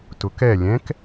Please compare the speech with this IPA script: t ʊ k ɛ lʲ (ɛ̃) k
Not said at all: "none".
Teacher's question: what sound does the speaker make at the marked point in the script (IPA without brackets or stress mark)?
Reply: ɛ̃